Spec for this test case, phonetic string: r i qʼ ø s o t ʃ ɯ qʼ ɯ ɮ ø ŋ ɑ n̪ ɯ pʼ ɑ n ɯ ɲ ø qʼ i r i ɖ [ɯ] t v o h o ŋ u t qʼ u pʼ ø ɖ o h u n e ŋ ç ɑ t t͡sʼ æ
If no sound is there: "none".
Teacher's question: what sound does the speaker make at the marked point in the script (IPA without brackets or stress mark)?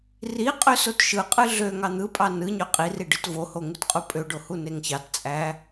ɯ